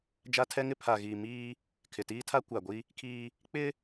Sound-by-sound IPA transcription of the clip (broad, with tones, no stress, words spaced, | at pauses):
d͡ʒa˦tʰɛ˦ŋɪ˦ pʰa˨ɣiː˨ miː˦ | kʰɪ˨tiː˦tʰa˦ kʷa˨ɡʷi˦ | kʰiː˦ | k͡pɪ˦